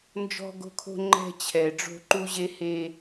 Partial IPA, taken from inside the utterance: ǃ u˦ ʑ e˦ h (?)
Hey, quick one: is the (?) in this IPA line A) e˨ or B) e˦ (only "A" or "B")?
B